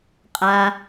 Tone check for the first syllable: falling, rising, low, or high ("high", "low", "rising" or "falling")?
high